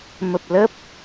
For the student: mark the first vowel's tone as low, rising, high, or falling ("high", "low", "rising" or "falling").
low